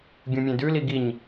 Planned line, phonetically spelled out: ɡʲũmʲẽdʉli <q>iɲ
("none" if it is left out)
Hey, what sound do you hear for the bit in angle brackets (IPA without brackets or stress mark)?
ɡ